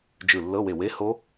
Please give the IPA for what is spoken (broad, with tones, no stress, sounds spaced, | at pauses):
d͡ʒ ɯ˧˩ lː ɤ˧˥˧ w e˧˩ w e˧˥˧ h o˦˥